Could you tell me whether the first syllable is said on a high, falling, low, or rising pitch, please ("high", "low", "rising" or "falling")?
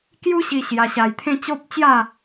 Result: high